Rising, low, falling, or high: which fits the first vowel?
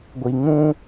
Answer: low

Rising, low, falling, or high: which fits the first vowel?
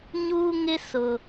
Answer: high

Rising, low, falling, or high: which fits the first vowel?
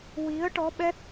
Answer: rising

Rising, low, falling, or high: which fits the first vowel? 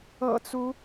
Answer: low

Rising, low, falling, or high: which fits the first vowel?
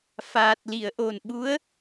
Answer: low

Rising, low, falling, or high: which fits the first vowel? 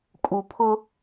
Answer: low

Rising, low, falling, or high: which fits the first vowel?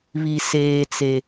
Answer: low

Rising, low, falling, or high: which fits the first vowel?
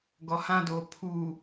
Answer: low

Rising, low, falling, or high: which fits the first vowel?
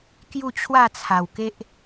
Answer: falling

